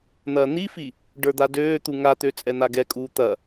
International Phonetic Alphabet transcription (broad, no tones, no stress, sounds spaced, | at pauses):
n̪ ɐː n̪ i f i | ɖ ə˞ d̪ a d øː t̪ u ŋ a t̪ ø t͡sʼ ɛ n̪ a ɡ ɛ kʼ uː t̪ ɐ